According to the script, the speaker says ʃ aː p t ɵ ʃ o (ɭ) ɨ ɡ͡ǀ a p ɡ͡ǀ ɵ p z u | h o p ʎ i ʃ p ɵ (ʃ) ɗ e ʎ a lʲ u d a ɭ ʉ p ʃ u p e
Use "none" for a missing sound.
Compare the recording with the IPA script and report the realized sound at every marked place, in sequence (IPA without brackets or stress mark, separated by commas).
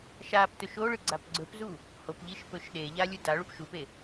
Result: ɭ, ʃ